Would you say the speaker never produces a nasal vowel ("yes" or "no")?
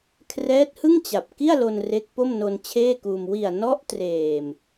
yes